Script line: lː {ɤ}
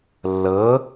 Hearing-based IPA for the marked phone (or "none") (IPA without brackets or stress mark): ɤ